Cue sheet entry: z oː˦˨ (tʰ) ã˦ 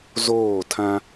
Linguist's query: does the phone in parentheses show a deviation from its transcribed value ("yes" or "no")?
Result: no